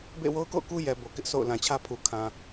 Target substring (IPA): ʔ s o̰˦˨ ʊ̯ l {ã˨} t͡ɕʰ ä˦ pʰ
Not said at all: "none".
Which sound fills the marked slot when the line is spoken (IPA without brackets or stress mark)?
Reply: ã˨